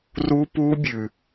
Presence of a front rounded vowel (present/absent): absent